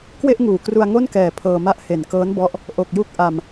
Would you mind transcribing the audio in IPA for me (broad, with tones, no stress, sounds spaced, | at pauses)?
k w e˥˩ ʔ ŋ uː˨˩ k r u˧ a̯ ŋ o˥˩ n k ɛː˨˩ pʰ ɤː˧ m a˥˩ ʔ h e˨˩ n k ɤː˦˥ n b ɔ˦˥ ʔ | ʔ o˨˩ k̚ j u˦˥ k̚ ʔ a˧ m